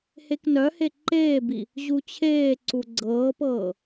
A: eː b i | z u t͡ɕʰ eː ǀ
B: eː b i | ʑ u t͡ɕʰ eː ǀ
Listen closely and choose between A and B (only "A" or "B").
B